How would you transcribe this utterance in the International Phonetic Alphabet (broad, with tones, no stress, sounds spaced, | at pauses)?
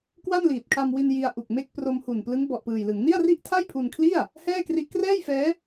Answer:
k w a˥˩ n l iː˨˩ t̚ kʰ a˧ m w i˧ n j i˧ a̯ ʔ u˨˩ k̚ m e˥˩ k̚ p r o˧ m h u˨˩ n p l ɯ˦˥ ŋ b ɔ˨˩ ʔ p ɯː˨˩ j l ɯ˩˦ ŋ n i˥˩ a̯ r i˥˩ ʔ tʰ a˥˩ j pʰ u˧ n kʰ l i˥˩ a̯ | h ɛː˥˩ k r i˦˥ ʔ k r ɛː˥˩ j f ɛː˦˥